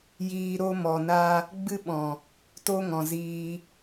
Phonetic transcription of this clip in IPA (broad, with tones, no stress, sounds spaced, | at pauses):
j iː˧ ɾ o˦ m ɔ˨ n a˦ | ɡ͡b ɨ˦ ɓ ɔ̃˨ | t o˦ ŋ ɔ̃˨ z iː˧